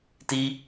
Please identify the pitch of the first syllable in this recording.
high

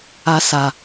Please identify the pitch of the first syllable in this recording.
high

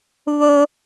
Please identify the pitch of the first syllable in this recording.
high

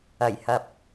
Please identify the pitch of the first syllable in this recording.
low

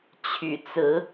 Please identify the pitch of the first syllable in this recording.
low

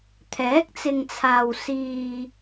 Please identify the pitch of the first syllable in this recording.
rising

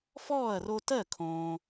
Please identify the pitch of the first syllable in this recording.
falling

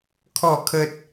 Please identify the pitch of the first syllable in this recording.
falling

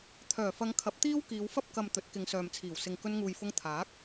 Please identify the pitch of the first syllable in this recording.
low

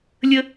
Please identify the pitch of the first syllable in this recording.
high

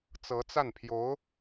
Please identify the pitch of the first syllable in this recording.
rising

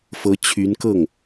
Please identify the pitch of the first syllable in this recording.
rising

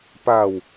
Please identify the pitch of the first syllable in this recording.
low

